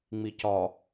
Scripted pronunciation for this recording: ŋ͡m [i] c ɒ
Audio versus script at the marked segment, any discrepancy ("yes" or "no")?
no